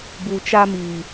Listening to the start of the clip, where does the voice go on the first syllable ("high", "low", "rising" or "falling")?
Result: low